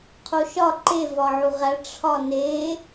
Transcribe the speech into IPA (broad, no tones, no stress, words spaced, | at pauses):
qʰoʃɒ ǃe vɒʕuʁæ ʈ͡ʂʰɒne